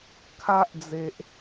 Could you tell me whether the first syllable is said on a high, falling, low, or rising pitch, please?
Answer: high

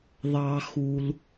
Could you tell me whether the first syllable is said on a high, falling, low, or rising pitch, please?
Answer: low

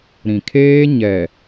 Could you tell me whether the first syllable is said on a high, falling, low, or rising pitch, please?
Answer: low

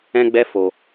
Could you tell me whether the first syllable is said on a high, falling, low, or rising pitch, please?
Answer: high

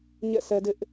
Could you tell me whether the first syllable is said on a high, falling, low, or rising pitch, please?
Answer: falling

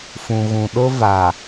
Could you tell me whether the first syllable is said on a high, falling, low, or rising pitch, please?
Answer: low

